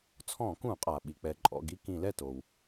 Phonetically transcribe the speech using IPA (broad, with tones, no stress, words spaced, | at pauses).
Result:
t͡sʰɔ̃˧˩˧kũ˧˩˧qʼa˩ ɓi˩k͡pɛ˩ǃʼɔ̰˩˧˩ɡi˥˧ kĩ˧˩˧lɛ˥˩to˩w